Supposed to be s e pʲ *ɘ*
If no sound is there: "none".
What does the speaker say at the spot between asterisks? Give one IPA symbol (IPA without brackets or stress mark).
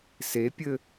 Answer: ɘ